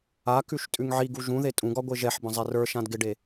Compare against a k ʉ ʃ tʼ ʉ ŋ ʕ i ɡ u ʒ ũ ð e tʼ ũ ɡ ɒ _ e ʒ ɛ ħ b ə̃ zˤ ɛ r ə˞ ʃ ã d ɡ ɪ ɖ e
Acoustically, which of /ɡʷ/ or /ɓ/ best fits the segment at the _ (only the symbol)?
ɡʷ